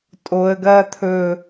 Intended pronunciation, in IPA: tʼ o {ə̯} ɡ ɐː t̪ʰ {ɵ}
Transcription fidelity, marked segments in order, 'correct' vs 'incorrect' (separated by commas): correct, correct